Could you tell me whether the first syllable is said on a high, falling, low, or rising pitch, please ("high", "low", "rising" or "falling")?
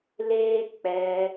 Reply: high